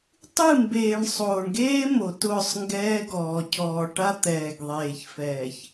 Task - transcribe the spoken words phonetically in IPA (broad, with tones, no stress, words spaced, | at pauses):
tˤɨ˦˨mbeː˨ɳ sˤoː˨ɳɡeː˦ mo˨tʊː˦˨sˤŋɡɛː˦ɡɔː˨ cʰɔː˨ʈa˦ t̪ɛː˨ɡðˤeː˨ç fɛː˨ç